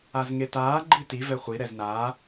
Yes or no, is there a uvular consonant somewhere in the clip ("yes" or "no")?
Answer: yes